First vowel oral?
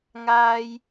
yes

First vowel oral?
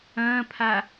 no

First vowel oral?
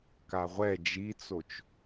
yes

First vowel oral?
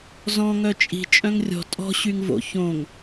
no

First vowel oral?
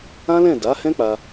no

